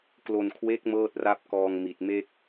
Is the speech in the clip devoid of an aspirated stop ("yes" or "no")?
no